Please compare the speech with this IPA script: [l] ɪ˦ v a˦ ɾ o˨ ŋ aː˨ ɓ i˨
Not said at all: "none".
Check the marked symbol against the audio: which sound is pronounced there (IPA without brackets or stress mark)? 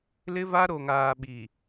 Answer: l